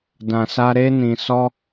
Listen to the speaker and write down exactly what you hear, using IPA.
d ã˨ s a˧ ɾ e˧ n ĩ˨ s ɔ˧

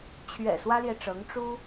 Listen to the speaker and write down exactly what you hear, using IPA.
t͡ɕʰ ɥ ɛ̰˨˩ s w ä˥ l j ɛ˨ ʈ͡ʂ ɤ˧˥ ŋ ʈ͡ʂ u˥

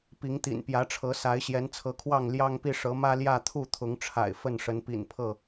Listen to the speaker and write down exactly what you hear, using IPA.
p i˨˦ ŋ t̪ ḭ˨˩ n p j ä˨˦ ʈ͡ʂʰ ɤ˨˦ s a˨˦ ɪ̯ ɕ j ɛ˨˦ n t͡sʰ ɤ˨˦ kʰ w ɑ˥˨ ŋ l j ɑ˦ ŋ p i˥˨ ʂ ɤ˨˦ m ä˦ l j ä˥˨ t̪ʰ u˥˨ t̪ʰ ʊ˨˦ ŋ ʈ͡ʂʰ a̰˨˩ ɪ̯ f ə˥˨ n ʂ ə˨˦ n p ḭ˨˩ n pʰ ɤ˥˨

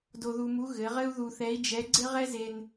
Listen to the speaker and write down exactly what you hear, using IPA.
d o˧ ð u˧ m u˧˥ ɣ ɘ˩˧ ʁ ɘ˥ u̯ ð u˧ θ ɛ˧˥ i̯ d͡ʒ ɛ˧˥ ɡ͡ǀ ɘ˥ ʁ ɛ˥ z e˧ n

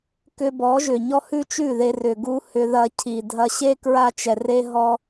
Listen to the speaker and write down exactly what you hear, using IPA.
k ʏ˧ b ɔ˨˦ ʒ ʏ˨ ɲ ɔ˦ h ʉ˦ t͡ʃ ʉ˦˨ ð e˧ r ʏ˧ ɡ u˦ h ʏ˧ ð ɐ˧ cʰ i˨ dʱ ɐ˧ ɕ e˦ k ɹ a˧ t͡ʃ ɛ˨ r e˧ ɦ ɔ˦

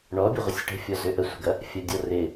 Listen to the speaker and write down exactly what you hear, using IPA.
ɳ ɔ bʲ ə ʁʷ ə sʲ ʈ ə̤ fʲ ɔ z ø ʔ ə sʷ ə̤ ɡ ɐ | fʲ ɐ dʲ ɔ r ɪ

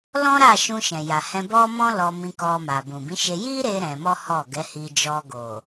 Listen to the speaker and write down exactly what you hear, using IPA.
l ɔ̃˦ ɾ a˦˨ ʃ ũ˧ ʃ ɛ̃˨ j a˨ h ɛ̃˧ b ɔ˦ m ɔ̃˦ l ɔ˧ m ĩ˧ k ɔ˧ m a˨ b ũ˨ b ĩ˨˦ ʃ e˧ j i˦ ɾ e˧ ɾ ɛ̃˧ m ɔ˦ h ɔ˦˨ ɡ ɛ˨˦ h i˧ d͡ʒ ɔ˧ ɡ o˨

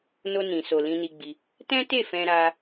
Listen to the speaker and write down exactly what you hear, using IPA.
n o˧ n ĩ˨ s o˨ l ĩ˧ n i˧ ɡ͡b i˧ | t ɛ̃˦ t e˦˨ f ɛ̃˧ ɾ a˦

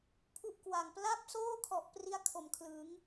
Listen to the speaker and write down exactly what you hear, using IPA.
pʰ u˥˩ ʔ k w a˨˩ ŋ p l a˥˩ p̚ s oː˥˩ kʰ ɔ˨˩ ʔ p r i˥˩ a̯ kʰ o˨˩ m kʰ l ɯ˩˦ ŋ

